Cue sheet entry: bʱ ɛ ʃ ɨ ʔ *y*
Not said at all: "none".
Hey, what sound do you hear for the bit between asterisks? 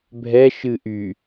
y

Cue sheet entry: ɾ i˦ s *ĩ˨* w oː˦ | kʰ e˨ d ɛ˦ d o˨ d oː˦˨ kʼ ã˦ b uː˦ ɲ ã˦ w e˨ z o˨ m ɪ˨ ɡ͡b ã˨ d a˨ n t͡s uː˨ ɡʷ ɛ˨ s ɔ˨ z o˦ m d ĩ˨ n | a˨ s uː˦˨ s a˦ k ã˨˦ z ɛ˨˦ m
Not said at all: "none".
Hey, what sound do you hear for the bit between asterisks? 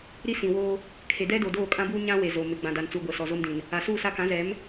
ĩ˨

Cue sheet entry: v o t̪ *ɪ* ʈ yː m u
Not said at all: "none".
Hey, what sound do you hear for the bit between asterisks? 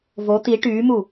i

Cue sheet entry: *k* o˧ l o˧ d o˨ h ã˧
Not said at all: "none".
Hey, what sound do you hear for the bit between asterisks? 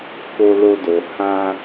k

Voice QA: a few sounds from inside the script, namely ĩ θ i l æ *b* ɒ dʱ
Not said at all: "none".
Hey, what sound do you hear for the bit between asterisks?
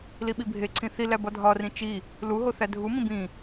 b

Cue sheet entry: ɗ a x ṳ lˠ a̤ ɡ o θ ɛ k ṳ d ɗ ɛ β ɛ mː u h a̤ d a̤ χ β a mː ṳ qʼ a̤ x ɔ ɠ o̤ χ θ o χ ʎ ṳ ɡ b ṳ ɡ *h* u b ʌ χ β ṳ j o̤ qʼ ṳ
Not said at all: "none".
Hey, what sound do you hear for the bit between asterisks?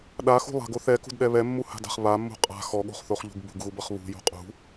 ɣ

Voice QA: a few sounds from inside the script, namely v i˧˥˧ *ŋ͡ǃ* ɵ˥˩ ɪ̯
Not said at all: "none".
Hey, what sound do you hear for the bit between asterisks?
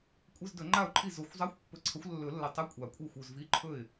ǃʰ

